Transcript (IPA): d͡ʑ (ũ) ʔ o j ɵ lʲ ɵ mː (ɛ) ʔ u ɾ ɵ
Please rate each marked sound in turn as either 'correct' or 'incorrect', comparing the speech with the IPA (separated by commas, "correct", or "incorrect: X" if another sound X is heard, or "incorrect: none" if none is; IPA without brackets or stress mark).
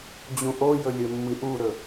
correct, incorrect: ɨ